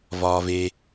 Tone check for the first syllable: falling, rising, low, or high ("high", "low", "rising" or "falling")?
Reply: low